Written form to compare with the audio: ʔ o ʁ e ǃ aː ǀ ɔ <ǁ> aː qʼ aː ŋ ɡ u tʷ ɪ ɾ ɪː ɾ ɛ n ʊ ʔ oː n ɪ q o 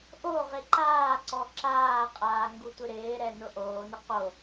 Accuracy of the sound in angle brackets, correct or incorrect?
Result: correct